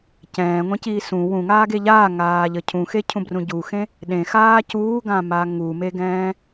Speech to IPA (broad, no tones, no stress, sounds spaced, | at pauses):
c ɛ̃ː ŋʷ ẽ c iː s ũ w ũ ŋ aː ɡ e ʎ aː ŋ aː ʎ ə cʰ ũ x e cʰ ũ b r ũ ɟ u x ẽ | ɗ ẽ x aː c uː ɡ ã m a ŋ u m e ɡ ɛ̃ː